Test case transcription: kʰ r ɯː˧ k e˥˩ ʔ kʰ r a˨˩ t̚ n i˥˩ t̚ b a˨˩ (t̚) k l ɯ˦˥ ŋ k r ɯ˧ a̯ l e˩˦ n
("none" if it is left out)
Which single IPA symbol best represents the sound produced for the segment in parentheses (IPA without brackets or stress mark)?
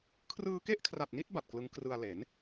t̚